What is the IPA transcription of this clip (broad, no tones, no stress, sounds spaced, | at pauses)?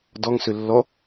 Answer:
d ɔ ŋ s ø lː ɔ